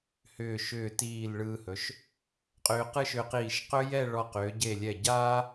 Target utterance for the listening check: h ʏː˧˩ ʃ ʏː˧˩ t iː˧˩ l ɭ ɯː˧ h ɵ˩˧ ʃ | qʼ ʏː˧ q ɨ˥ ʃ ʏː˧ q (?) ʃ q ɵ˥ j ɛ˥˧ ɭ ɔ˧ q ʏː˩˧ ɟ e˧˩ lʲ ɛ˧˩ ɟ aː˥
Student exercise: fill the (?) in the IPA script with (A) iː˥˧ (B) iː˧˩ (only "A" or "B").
B